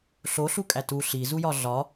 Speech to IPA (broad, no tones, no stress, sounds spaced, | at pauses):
ɬ o ɬ u kʼ æ t u ɬ i z u j ɒ ɮ ɒ